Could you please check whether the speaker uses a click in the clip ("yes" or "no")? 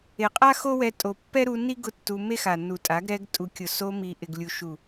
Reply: no